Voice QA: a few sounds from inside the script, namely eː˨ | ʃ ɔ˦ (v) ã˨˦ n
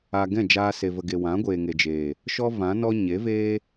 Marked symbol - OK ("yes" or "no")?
yes